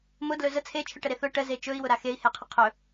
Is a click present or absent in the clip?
absent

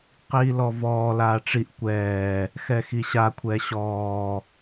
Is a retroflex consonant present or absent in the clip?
present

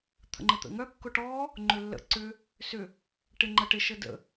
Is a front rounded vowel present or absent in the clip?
present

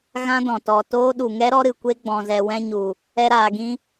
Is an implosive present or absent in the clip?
present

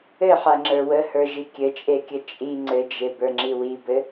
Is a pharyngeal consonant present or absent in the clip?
present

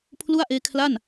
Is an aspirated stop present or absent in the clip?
present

